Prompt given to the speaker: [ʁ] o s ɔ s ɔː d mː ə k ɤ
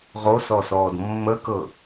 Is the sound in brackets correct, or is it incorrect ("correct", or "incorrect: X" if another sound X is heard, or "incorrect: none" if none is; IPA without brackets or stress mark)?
correct